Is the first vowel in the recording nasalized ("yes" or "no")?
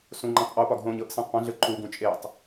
yes